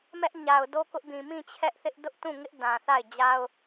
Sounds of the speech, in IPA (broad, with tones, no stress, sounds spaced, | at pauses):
m ɛ˦ ʔ ɲ a˨ ʊ̯ d o˦ k ʊ˦ ʔ b ĩ˨ m ĩ˦˨ t͡ɕʰ ɛ˦ ʔ θ ɪ˦ ʔ d ʊ˦ ʔ t ũ˦˨ ŋ ɪ˦ ʔ d ã˨ θ a˦˨ ɪ̯ d͡ʑ a˦ ʊ̯